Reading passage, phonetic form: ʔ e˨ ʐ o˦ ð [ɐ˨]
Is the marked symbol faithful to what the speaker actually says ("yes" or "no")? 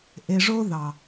no